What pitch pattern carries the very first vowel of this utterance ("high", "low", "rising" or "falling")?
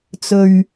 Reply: low